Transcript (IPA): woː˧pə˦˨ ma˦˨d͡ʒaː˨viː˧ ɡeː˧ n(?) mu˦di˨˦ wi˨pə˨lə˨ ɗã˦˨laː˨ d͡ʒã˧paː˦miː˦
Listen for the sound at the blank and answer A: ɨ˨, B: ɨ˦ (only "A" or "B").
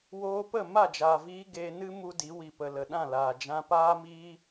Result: B